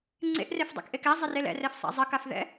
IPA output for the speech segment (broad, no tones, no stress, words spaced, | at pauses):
ŋ͡ǀḛʔrefdˤɛ̰kʔek ɛ zˤɪrelɛ̰rɛf sˤa̰zˤəkafðɛ̰